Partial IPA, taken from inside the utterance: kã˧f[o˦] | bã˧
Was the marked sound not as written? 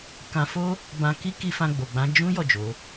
no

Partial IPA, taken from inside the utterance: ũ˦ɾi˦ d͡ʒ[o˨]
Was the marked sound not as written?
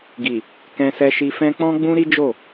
yes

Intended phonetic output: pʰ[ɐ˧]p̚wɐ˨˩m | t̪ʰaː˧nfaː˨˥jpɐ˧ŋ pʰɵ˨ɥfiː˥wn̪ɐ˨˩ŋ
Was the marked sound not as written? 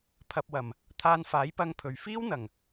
no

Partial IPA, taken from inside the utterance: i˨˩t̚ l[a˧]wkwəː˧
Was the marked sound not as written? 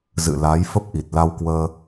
no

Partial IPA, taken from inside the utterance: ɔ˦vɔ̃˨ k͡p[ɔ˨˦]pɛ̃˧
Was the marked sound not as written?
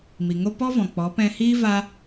no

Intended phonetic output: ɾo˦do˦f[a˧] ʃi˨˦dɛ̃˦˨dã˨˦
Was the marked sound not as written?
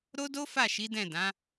yes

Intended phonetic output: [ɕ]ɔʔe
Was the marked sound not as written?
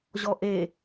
yes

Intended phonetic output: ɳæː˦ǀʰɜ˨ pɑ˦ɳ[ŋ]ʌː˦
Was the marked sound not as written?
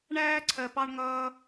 no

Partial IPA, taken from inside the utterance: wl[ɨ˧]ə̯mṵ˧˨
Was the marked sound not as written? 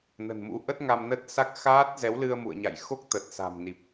no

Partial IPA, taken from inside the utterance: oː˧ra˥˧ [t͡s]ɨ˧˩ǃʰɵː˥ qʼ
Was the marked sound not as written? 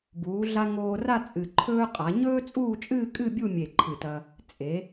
yes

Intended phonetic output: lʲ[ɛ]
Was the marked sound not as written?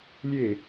yes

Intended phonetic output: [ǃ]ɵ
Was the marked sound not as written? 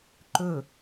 no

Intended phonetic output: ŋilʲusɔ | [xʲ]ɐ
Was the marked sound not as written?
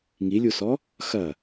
yes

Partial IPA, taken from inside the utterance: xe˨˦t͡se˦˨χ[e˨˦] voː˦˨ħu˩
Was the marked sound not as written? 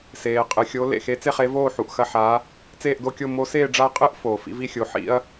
no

